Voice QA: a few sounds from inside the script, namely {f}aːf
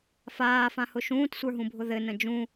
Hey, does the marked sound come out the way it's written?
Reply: yes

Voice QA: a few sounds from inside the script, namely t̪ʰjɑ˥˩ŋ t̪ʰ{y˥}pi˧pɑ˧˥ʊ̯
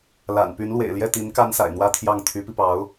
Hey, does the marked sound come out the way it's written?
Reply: no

